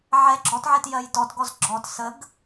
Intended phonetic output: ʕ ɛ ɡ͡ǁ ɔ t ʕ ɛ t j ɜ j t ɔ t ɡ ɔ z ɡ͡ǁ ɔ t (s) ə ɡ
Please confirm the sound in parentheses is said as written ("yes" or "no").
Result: yes